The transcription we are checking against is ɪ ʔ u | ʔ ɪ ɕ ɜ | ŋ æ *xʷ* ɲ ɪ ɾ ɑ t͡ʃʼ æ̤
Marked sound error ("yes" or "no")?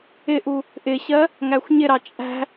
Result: no